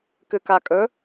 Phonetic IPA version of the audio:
k ɨ k a kʼ ɵ

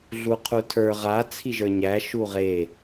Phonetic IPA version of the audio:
ɮ u qʰ u tʰ ə˞ ʁ a t͡sʰ i ʒ ə˞ ɲ æ ʃ u ʁ e

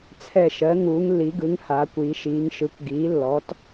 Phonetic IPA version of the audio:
t͡sʰ ɛ˧˩ ʃ ɜ˩˥ ŋ uː˩˧ ŋ lː i˩˧ ɡ ɯ˩˧ ŋ h aː˩˧ kʷ iː˩˧ ʃ iː˩˧ ŋ ʃ ɯ˩˥ kʷ ɡ iː˩˥ lː ɔ˩˥ t

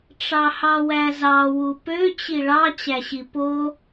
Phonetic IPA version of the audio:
ʈ͡ʂ ɑ h ɑ w æ z ɑ w u p ø t͡ɕ i ɭ ɑ t͡ɕ æ ɕ i p o

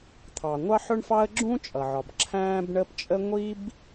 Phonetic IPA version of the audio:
t̪ʰ ɑ˩ ŋʷ ɑ˥ ħ ʊ˥ ɳ f ɑ˥ ə̯ ɡ͡ǁ ũ˥ t͡ʃʼ ʌ˩ ʕ ɒ˩ b ǁʰ æ̃ː˥ b ɳ ə˥ p t͡ʃʼ ə˥ ŋʷ i˥ b

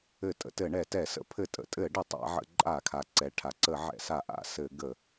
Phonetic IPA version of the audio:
ɘ˧˩˧ tʼ ə̰˩˧ t ɘ˧˩˧ ɳ ɛ˧˩˧ t ɛ˧˩˧ s ə̰˧˩˧ pʰ ɘ˧˩˧ tʼ ə̰˩˧ tʼ ɘ˧˩˧ ɖ ə˧˩˧ tˤ a̰˧˩˧ ʕ ə̰˧˩˧ ǃʼ a˧˩˧ kʰ a˩˧ ǀ ɛ˩˧ ʈʰ a˩˧ ǀ ə˧˩˧ ʕ ɛ̰˧˩˧ s a˧˩˧ ʔ a̰˧˩˧ s ɘ˧˩˧ ɡ ə˧˩˧

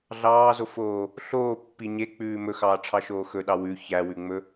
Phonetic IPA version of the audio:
ɮ ɑː z o f oː | ɬ oː pː i ɲ e k͡p ʉː m ɵ x ɑː ʈ͡ʂʰ ɑ ʃ oː x ɵ ɗ ɑ w ʉ ç æ w ʉ ŋ͡m ɵ

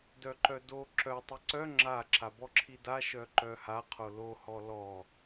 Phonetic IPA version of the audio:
d œ ǃ œ d o ǁ œ tˤ ɪ ǀ œ ŋ͡ǁ a ǁ a b ɔ ǁʰ i d a ʃ œ ǃ œ h a qʰ o l o h ɔ l ɔ

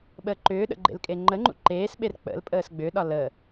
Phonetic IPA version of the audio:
ɓ əː ǃ ʏː ɗ ə̰ ɡ͡ǃ ḛ l kʼ e ŋ͡ǃ ə ŋ͡ǃ ṵ ǃ eː s ɓ e r k͡p ə̰ l pʼ əː s ɡ͡b ʏ ɗ ɒ l ə

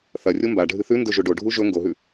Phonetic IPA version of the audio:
θ ɐ rʲ o m b a ɖʱ ɨ θ ʉ n d ɵ ʒ o ɖ o ɖʱ u ʒ ɵ ŋ ɡ o ɦ ʉ

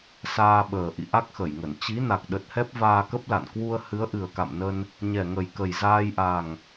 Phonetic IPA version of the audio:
s aː˧ ɓ əː˨˩ ʔ ḭ˧˨ ʔ a˦˥ k̚ x ə˧˩ j ŋ ə˧˩ n t͡ɕ i˨˦ n a˨˩ k̚ ɗ ə˨˩ t̚ h ɛ˦˥ p̚ v aː˧ k ə˦˥ p̚ l a̰˧˨ n k w u˧ ə̯ h ɨ˨˦ ə̯ ʔ ɨ˨˩ ə̯ k a̰˧˨ m n ə˧ n | ɲ ɛ˨˩ ŋ ə˨˩ j k ə˨˩ j z aː˧ j ʔ a˨˩ ŋ

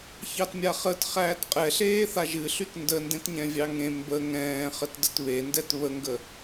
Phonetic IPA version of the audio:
ç ɑ t mʲ a χ ə t χ æː t qʼ ɛ ɬ eː θ a ʒ ɨ ɬ y t n d ə n d ẽ t ɲ ɛ̃ vʲ ɑ ŋ ẽ m b ə ŋ ɛ̃ː χ ə t d ə t β e n d ɛ t β ə ŋ ɡ ə

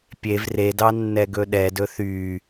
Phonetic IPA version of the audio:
pʲ e v r e d ɑ nː ɛ ɡ ɵ ɗ ɛ d ɵ θ y

